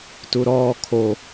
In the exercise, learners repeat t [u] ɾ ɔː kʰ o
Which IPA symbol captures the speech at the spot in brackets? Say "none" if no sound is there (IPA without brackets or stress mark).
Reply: u